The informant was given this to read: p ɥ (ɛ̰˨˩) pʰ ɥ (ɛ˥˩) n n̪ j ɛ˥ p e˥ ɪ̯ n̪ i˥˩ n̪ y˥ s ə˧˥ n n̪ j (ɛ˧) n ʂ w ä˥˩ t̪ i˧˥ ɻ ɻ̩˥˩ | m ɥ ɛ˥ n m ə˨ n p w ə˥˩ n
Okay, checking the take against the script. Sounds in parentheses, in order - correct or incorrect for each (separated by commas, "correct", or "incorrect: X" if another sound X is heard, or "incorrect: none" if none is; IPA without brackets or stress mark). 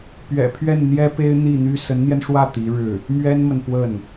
correct, correct, correct